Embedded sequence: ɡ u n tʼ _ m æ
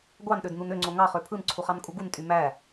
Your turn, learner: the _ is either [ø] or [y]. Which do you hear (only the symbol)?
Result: y